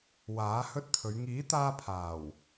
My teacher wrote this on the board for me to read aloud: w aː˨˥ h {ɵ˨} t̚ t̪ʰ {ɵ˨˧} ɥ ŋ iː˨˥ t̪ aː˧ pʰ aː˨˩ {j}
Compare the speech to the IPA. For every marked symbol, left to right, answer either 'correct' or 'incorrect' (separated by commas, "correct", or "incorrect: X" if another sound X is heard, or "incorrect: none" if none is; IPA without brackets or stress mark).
incorrect: ɵ˥, correct, incorrect: w